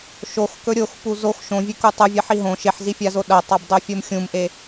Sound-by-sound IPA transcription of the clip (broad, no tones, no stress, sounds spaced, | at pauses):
ʃ o x k ɵ ɾʲ o x p u z o x ʃ õ vʲ ʉ k u tˤ ɨ vʲ ɐ ħ i ɦ õ ʃ e ħ z i fʲ a z o ɗ ɐ tˤ a b dˤ ɵ fʲ o m xʲ ũ m ʔ e